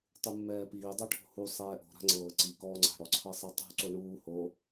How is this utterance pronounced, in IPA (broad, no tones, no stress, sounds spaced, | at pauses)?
tˤ u mː ɛː p iː dˤ o ʈʰ o̤ h u sˤ ɛː ʔ o̤ ɾ a̤ ŋ͡ǀ ɤː ǀ i k ɔː ŋ͡ǀ a̤ ɽ ɔ ǀʰ ɤ sˤ ɛ tˤ ṳ ǀ o ɳ uː h o